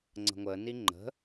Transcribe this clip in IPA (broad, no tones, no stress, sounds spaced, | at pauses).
ŋ͡ǀ ə̤ ŋʷ ə n i ŋ͡ǃ ə̤